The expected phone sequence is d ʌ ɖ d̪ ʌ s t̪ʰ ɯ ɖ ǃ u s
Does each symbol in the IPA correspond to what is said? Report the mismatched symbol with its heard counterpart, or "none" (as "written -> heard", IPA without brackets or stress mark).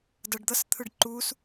none